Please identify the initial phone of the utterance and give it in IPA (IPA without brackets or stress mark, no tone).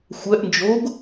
xʷ